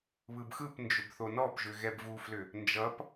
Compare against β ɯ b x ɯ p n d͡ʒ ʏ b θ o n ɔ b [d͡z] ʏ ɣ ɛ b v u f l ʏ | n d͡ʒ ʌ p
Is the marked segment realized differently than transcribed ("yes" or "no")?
yes